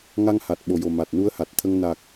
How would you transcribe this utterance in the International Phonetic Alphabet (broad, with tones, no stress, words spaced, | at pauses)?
ŋa˧ŋha˨˩t̚ ɓo˨˩jo˨˩ ma˨˩t̚ nu˧ə̯ha˨˩t̚t̪ʰə˧ŋ na˨˩k̚